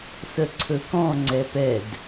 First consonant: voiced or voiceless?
voiceless